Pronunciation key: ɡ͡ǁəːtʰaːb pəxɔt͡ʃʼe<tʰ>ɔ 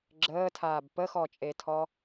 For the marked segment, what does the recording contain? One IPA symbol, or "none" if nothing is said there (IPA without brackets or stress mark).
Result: tʰ